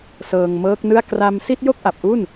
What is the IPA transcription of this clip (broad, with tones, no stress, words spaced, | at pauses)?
sɤː˧ŋmɤː˦˥k̚nɯ˥˩a̯ kra˧msi˥˩t̚ jo˥˩k̚ʔa˨˩p̚ʔu˥˩n